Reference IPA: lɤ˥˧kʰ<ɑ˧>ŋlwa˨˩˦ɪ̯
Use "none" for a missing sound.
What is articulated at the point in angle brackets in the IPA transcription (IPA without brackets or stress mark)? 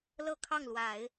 ɑ˥˩